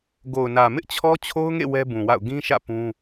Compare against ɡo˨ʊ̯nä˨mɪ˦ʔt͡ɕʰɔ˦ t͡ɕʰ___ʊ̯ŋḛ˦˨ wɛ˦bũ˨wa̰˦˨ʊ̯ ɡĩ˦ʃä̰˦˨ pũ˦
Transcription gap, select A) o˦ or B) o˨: A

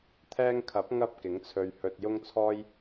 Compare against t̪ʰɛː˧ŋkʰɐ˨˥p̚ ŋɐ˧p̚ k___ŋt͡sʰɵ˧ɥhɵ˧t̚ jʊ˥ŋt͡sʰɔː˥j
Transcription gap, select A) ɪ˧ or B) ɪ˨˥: B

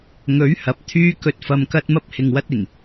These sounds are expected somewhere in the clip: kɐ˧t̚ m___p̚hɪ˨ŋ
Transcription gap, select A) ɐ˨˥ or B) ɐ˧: B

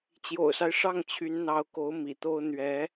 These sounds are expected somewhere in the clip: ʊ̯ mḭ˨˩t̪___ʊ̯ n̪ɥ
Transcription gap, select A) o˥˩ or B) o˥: B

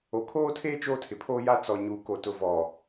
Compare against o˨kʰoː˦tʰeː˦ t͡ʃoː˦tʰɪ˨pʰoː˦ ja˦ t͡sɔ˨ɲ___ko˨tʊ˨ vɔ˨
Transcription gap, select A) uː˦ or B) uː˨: B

